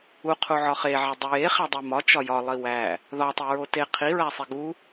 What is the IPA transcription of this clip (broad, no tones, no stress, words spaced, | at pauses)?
uqʰu ʕɒχeʕe dˤojeχæ dˤemɒ t͡ʃɒjɒlˠi wæ | ðɒ tˤeɹote qʰiɹæsˤe ɡu